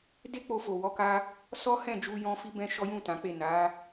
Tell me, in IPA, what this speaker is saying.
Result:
d e˦ k͡p o˧ f o˨ w ɔ˨˦ k a˧ | s ɔ˦ h ɛ̃˦˨ d͡ʒ u˧ j ɔ̃˧ f i˦ b ɛ̃˦ ʃ ɔ˦ j ũ˦˨ t ã˨˦ k͡p e˦˨ n a˨˦

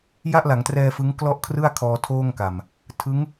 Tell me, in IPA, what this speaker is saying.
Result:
j a˥˩ ʔ l a˩˦ ŋ t r ɛː˧ f ɯ˦˥ ŋ k l ɔ˥˩ ʔ kʰ r ɯ˥˩ a̯ kʰ ɔː˧ tʰ oː˥˩ ŋ k a˨˩ m | tʰ ɯ˦˥ ŋ

